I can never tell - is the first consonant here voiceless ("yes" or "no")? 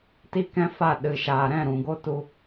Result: yes